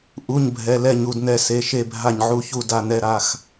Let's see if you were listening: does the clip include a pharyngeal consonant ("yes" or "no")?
yes